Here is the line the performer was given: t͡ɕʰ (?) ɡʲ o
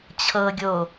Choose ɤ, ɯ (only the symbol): ɤ